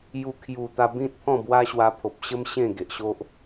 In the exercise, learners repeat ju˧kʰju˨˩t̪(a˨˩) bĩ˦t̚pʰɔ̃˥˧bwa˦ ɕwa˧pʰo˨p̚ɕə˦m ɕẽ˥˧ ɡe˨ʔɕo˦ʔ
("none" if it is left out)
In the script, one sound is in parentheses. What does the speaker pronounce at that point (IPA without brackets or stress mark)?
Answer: a˧